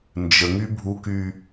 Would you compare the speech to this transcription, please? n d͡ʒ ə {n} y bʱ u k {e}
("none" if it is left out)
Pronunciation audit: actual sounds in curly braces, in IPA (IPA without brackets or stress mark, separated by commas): ŋ, y